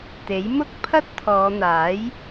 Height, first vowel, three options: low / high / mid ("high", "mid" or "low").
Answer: mid